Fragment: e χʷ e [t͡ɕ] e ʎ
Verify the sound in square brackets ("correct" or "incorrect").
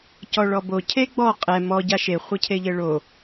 incorrect